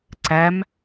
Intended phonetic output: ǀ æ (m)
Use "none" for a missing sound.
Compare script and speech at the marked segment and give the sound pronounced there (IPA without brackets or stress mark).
m